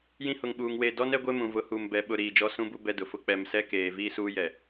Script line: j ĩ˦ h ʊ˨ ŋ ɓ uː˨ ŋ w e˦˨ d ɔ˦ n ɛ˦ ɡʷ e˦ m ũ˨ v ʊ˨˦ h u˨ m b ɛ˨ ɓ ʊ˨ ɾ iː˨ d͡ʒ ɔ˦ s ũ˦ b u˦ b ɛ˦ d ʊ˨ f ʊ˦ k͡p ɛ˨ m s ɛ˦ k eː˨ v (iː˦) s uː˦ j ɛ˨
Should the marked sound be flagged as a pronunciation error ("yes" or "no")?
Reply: no